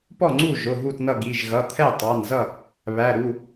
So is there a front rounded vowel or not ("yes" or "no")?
no